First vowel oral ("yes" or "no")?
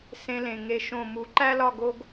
no